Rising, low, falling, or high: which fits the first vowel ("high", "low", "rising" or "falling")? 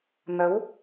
rising